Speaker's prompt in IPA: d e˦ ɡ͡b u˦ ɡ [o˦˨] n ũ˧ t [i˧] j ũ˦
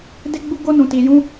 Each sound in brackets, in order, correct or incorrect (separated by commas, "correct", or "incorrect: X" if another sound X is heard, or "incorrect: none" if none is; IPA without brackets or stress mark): incorrect: o˦, correct